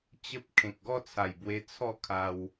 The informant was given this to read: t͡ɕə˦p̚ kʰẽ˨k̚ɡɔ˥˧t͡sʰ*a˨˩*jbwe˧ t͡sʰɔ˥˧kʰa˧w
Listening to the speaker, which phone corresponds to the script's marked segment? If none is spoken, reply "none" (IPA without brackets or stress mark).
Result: a˨˩